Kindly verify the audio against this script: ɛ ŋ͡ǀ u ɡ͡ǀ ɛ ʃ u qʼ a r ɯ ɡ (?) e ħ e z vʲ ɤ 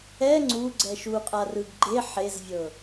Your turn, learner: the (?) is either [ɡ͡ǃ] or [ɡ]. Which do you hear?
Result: ɡ͡ǃ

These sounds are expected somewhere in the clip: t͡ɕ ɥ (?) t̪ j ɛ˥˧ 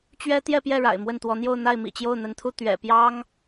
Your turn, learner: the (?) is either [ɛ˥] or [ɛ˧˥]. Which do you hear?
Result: ɛ˥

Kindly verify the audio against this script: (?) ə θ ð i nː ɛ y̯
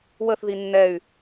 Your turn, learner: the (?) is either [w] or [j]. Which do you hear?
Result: w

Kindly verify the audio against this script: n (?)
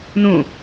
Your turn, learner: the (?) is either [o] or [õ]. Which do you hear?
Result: õ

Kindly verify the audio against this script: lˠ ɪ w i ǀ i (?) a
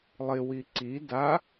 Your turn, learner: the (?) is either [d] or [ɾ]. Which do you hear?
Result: d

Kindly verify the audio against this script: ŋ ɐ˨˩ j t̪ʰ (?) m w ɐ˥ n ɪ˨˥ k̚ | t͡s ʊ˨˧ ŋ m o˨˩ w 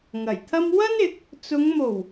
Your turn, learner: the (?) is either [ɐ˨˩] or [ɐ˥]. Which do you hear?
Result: ɐ˥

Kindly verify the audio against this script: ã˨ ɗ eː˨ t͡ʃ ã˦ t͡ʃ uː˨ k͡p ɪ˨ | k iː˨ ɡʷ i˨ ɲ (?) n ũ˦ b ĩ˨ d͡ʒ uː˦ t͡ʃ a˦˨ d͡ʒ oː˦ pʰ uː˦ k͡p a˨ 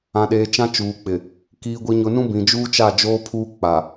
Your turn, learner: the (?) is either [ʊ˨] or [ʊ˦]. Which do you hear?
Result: ʊ˨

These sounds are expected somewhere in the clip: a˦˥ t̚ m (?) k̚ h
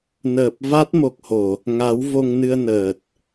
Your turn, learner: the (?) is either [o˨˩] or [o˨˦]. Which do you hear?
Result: o˨˩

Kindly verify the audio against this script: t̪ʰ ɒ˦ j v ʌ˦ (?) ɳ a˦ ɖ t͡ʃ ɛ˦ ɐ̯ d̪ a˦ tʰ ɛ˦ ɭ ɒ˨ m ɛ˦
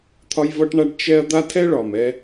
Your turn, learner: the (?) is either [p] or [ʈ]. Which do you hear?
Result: ʈ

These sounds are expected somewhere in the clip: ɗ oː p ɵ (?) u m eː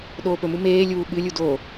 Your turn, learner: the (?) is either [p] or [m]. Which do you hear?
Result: m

